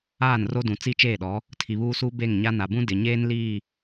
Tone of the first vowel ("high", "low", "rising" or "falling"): falling